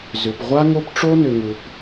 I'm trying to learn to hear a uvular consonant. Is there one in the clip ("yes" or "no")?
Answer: yes